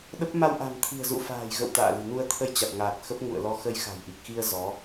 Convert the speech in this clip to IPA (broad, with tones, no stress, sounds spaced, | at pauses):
ɗ ə˦˥ p̚ m a˧ w ʔ a̤˨˩ m t̪ʰ i̤˨˩ ə̯ z ṵ˧˨ f a̤ː˨˩ j ɣ ə̰˧˨ w t̪ a̰ː˧˨ l i̤˨˩ n u˧ ə̯ t̪ʰ ə˧ j t͡ɕ a˨˩ t̚ ŋ aː˨˩ t̚ x ə˦˥ p̚ ŋ ṵ˧˨ ə̯ l ɔ˧ x ə˧ j x a̤˨˩ j ʔ i˨˩ k̚ x i˧ ə̯ z ɔ˨˦